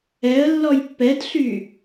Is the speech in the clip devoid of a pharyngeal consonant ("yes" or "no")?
yes